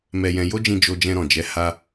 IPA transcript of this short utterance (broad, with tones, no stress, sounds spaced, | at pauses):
m ɛ˧ j ɛ̃˧ j o˦ d͡ʒ ĩ˧ d͡ʒ o˧ d͡ʒ ɛ̃˧ ɾ ɔ̃˨ d͡ʒ ɛ˨˦ h a˧